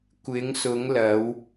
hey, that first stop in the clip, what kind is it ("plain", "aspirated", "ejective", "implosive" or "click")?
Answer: plain